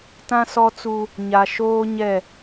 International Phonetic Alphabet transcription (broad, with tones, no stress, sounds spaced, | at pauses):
t ã˦ s ɔ˦ t͡s u˦ | ɲ a˨ ʃ oː˦ ɲ ɛ˦˨